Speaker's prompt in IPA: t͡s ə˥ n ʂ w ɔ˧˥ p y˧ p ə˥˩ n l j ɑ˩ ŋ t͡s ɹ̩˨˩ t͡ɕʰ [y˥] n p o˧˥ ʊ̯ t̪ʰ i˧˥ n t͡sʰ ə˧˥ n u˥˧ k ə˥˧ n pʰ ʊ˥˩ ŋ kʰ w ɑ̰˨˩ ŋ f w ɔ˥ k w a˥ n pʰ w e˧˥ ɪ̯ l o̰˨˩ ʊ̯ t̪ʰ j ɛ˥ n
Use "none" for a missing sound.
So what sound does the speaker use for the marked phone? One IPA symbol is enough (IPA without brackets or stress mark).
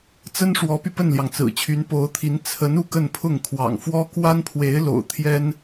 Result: y˧˥